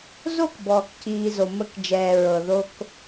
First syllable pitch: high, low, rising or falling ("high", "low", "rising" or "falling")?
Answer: falling